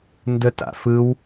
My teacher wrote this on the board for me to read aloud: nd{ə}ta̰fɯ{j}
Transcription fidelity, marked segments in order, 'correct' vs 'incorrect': correct, incorrect: w

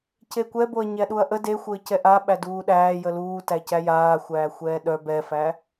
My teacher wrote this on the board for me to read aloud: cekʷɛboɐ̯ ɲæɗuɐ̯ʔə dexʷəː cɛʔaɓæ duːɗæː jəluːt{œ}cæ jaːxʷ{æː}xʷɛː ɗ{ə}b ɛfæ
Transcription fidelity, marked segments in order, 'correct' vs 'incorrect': incorrect: æ, correct, incorrect: œ

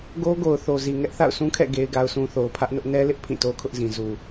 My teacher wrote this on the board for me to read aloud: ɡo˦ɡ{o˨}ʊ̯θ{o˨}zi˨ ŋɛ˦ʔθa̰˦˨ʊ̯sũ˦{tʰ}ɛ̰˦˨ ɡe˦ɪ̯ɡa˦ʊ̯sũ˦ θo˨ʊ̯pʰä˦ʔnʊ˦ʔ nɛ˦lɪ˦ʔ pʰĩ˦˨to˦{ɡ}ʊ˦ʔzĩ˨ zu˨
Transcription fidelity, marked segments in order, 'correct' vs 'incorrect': correct, correct, incorrect: kʰ, incorrect: kʰ

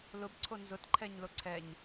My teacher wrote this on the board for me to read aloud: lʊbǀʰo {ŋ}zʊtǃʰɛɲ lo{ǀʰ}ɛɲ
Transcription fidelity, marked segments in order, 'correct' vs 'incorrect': incorrect: n, correct

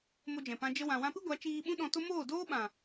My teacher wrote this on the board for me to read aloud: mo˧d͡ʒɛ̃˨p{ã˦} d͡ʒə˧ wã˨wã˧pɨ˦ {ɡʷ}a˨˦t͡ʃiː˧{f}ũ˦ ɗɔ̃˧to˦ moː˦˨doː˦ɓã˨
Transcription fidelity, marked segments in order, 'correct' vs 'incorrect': incorrect: ã˧, correct, incorrect: ɓ

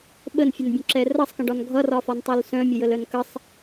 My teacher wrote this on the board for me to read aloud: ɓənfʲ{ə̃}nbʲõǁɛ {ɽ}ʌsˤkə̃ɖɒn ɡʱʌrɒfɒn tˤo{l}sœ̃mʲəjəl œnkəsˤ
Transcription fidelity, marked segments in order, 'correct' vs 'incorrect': incorrect: ə, incorrect: r, correct

